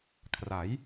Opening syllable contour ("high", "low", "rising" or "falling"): rising